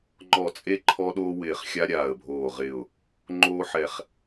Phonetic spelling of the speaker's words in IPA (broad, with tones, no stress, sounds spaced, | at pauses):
ŋ͡ǃ ɔ˧˩ t͡sʼ e˦ ǃʰ ɔ˦ ɗ oː˦ w ɪː˧˩ χ xʲ a˦ ɾʲ aː˧˩ ə̯ bʱ oː˧˩ ʁ ɪ˧˩ ʊ̯ | ŋ͡ǃ oː˦ ħ ɛ˧˩ χ